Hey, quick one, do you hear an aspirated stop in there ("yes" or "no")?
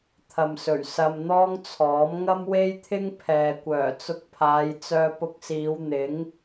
yes